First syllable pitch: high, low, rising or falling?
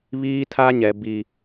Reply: high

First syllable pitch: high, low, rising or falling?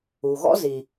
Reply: low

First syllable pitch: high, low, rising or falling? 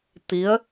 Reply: rising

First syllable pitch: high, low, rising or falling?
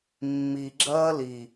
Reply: low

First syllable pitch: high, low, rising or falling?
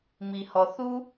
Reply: low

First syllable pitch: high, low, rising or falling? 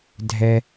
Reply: high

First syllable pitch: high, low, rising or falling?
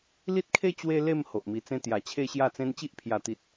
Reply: high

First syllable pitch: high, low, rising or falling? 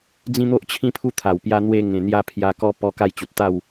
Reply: high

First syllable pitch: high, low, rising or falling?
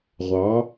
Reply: rising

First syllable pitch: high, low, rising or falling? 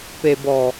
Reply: low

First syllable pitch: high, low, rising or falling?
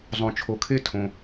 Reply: low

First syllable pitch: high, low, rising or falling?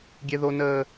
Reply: high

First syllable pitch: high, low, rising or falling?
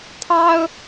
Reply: high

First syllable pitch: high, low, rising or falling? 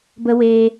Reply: high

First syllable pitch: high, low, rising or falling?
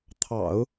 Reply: low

